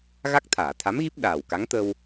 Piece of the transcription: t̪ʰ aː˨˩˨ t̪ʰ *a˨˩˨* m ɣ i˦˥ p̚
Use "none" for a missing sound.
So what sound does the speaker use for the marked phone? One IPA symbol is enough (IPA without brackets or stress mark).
a˧˥